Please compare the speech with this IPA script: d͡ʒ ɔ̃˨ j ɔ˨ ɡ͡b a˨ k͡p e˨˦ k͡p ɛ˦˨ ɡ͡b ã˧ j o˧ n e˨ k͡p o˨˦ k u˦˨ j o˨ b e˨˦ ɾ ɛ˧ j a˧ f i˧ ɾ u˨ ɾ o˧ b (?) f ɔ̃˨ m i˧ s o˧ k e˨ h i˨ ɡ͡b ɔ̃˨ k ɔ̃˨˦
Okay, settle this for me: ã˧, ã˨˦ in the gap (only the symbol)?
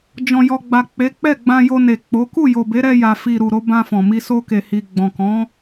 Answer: ã˧